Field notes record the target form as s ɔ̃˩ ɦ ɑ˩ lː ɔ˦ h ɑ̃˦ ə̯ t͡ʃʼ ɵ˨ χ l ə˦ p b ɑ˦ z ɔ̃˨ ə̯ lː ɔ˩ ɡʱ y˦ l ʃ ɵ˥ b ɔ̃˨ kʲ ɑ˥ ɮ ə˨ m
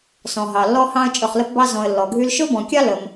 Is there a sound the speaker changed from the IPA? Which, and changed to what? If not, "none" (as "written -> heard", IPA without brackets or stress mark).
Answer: ɮ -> l